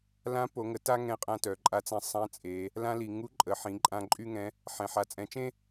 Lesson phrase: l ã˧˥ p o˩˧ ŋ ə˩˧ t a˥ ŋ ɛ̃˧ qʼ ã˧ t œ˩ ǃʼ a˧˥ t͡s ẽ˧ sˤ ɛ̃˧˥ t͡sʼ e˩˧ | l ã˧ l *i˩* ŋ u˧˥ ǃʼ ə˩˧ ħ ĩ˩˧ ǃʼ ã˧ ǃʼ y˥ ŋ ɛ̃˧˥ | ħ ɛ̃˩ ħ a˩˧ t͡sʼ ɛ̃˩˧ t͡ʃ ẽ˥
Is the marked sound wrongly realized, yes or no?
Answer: no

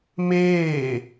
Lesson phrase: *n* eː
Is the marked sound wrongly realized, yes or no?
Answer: yes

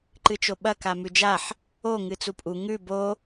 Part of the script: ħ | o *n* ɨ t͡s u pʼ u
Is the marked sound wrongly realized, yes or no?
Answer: yes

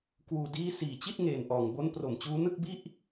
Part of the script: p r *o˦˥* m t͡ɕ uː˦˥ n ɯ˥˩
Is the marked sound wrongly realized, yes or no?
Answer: yes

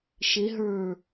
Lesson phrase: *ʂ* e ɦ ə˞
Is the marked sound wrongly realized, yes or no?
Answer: yes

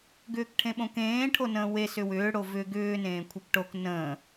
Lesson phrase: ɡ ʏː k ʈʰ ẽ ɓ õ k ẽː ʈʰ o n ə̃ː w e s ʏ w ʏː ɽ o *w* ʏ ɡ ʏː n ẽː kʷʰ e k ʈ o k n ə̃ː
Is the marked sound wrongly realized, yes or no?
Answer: yes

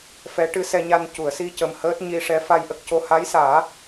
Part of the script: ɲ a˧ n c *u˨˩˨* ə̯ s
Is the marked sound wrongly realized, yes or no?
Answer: no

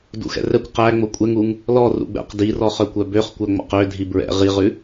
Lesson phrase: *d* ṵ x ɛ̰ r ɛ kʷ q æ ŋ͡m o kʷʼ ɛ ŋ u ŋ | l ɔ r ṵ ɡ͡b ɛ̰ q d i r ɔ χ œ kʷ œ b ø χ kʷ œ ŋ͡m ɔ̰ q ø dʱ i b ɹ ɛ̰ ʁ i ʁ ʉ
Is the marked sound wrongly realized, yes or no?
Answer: no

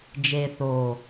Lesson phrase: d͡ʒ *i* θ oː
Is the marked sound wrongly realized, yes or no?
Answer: yes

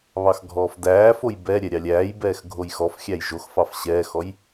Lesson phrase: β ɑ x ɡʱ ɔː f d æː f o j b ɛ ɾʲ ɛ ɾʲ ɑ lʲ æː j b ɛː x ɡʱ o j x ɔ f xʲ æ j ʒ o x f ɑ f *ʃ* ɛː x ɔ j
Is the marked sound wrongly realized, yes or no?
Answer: yes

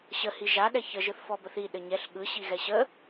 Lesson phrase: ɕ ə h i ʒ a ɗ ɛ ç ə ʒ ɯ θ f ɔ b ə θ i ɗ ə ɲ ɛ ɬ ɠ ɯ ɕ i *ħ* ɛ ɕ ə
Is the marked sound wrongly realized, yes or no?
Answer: yes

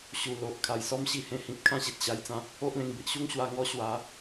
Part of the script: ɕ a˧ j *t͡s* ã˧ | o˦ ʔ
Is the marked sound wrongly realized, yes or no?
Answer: no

